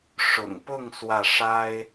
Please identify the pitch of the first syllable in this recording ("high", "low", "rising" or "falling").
low